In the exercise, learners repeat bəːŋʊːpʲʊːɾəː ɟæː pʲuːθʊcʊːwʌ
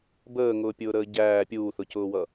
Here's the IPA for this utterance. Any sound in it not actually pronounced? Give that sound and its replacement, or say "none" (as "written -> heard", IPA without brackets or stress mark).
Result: none